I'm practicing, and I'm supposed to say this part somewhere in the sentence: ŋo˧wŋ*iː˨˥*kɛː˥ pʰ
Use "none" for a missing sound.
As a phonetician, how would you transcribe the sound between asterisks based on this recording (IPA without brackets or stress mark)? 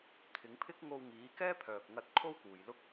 iː˨˥